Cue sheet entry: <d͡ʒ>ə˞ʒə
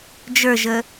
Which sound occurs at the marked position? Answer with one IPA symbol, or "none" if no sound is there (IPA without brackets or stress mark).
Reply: d͡ʒ